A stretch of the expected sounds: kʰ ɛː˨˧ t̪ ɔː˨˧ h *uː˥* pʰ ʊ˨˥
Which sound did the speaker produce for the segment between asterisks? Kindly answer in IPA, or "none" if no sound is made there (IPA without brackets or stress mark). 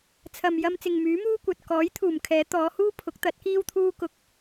uː˥